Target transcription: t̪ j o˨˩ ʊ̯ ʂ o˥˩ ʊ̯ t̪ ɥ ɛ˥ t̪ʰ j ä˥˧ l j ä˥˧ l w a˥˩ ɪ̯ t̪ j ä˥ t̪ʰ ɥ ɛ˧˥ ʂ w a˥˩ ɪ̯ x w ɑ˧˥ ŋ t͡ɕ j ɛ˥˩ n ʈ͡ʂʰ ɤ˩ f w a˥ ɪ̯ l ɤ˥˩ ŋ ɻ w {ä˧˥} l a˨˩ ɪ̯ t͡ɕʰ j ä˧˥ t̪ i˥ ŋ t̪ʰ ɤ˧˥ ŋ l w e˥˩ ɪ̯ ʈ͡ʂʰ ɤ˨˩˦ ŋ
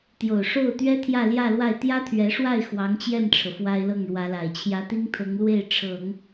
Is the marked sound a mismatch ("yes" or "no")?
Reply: no